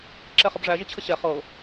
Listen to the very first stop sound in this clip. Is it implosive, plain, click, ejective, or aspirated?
click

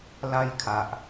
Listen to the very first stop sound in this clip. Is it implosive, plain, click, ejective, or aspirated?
aspirated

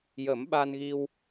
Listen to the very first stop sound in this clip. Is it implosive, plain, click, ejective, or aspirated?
implosive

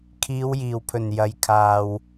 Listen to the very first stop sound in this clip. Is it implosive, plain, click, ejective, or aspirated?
aspirated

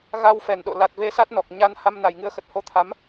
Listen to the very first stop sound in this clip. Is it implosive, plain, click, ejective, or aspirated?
implosive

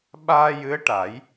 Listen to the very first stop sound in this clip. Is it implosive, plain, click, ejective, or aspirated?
implosive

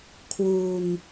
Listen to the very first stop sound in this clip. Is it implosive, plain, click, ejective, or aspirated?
aspirated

